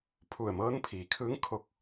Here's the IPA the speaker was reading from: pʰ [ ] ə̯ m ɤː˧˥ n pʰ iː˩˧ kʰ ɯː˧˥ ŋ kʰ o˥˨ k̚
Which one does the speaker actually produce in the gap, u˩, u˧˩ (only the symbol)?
u˧˩